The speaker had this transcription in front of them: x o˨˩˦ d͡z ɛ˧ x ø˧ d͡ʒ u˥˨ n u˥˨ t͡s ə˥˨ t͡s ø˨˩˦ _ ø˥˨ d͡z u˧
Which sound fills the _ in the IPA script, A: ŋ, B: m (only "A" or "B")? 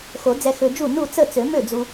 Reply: B